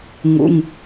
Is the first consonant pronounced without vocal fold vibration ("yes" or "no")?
no